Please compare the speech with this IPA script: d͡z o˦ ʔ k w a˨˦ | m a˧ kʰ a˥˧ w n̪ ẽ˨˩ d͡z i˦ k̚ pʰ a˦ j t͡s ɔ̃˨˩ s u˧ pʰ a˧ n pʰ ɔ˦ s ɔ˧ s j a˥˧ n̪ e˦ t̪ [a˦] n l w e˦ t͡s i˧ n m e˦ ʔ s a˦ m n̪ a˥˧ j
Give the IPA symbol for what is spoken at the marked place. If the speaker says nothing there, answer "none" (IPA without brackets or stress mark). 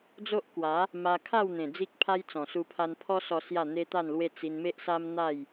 a˥˧